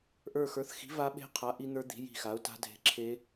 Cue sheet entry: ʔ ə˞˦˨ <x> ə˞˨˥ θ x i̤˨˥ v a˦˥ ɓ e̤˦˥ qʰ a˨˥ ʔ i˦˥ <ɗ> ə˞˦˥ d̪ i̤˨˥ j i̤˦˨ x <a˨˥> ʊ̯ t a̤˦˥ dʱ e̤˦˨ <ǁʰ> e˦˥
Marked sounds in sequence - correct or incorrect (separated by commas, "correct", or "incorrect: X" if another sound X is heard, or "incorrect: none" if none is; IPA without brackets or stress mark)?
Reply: correct, incorrect: n̪, correct, correct